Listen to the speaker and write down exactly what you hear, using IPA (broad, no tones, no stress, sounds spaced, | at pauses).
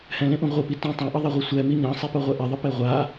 h ɛ̃ l ẽ ʔ ũ ʁʷ ɯ p i t ũ tˤ ẽ ʔ ʌ ðˤ ɛ ʁʷ ɛ sʷ ɛ m i ɲ ã sˤ e p o ʁʷ ɛ ʔ ɛ ðˤ ɯ p e ʁʷ a